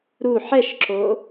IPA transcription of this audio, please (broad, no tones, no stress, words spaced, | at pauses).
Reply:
ɾu ħɛʃǁo